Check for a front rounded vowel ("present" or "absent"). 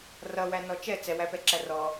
absent